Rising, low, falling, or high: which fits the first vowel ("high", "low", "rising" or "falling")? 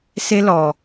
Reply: high